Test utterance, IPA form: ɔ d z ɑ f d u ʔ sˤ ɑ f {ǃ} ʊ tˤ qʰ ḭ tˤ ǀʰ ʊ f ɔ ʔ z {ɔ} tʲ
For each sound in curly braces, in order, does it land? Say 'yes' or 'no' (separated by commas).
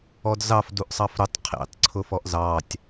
no, no